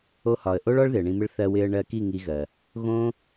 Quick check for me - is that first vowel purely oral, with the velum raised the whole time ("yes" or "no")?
yes